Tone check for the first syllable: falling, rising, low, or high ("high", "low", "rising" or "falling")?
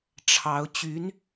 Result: rising